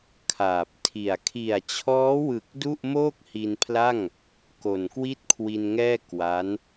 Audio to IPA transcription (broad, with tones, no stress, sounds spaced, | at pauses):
kʰ aː˨˩ p̚ tʰ i˨˩ a̯ kʰ i˨˩ a̯ t͡ɕʰ ɔː˦˥ w ɯ˨˩ k̚ d u˥˩ ʔ m oː˥˩ k̚ h i˧ n pʰ l a˥˩ ŋ | k o˨˩ n k w i˥˩ t̚ kʰ w i˧ n ŋ ɛː˥˩ k w a˦˥ n